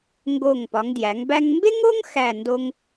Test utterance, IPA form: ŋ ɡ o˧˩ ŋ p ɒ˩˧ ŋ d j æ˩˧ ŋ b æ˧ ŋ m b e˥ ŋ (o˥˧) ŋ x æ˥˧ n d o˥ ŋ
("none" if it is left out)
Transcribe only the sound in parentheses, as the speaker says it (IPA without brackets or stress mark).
o˥